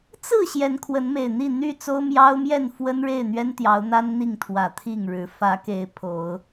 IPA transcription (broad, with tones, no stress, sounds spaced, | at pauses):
t͡s ɹ̩˥˨ ɕ j ɛ˨˦ n kʰ w ə˨˦ n m e˨˩ ɪ̯ n̪ i˥˨ n̪ y˥˨ t͡s o˦ ʊ̯ m j ɑ˦ ʊ̯ m j ɛ˥˨ n f w ə˦ n ɻ e˥˨ ɪ̯ n̪ ɥ ɛ˦ n t̪ j ɑ˨˦ ʊ̯ n̪ a˦ n n̪ i˥˨ ŋ t̪ʰ w ä˨˩ t̪ʰ i˥˨ ŋ ɻ ɻ̩˨˦ f ä˨˦ k e˨˦ ɪ̯ pʰ o˨˦ ʊ̯